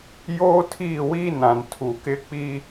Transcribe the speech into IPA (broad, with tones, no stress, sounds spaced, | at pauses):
j oː˦ tʰ iː˦˨ w iː˦ n ã˨ n tʰ u˨ k ɪ˦ k͡p i˦